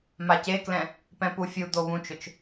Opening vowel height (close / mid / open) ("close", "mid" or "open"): open